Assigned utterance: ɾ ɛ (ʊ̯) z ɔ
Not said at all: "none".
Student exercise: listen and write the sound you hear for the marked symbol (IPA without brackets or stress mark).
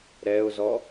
ʊ̯